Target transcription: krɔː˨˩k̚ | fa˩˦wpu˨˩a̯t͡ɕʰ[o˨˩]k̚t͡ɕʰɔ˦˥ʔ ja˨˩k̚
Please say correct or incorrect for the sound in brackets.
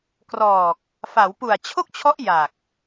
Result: incorrect